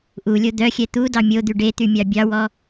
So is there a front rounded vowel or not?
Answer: yes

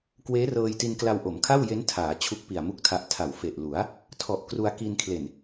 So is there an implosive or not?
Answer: no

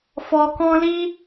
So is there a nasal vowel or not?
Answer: yes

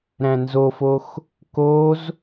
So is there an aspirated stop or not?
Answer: no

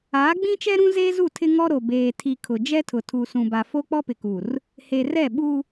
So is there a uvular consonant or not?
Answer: no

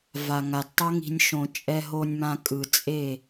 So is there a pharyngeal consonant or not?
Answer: no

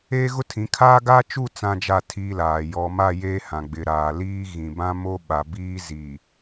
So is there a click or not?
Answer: no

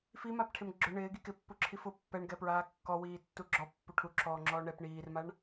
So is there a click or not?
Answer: yes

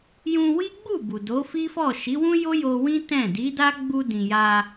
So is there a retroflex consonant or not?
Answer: no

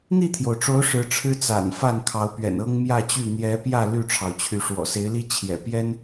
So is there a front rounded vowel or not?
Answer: yes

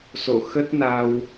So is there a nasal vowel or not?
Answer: no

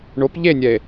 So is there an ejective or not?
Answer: no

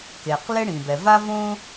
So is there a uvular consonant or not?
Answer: yes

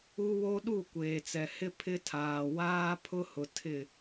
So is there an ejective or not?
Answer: no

